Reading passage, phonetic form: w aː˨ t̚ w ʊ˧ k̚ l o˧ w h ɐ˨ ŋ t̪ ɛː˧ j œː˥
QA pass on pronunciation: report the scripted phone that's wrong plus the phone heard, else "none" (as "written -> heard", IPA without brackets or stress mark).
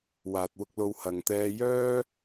none